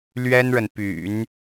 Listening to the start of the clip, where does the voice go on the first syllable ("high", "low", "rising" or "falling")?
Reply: high